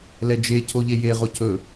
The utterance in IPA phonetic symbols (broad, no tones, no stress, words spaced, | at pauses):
lɛd͡ʒe cʰoʎeje ʁocʰɵ